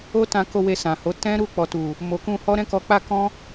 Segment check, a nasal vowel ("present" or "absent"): present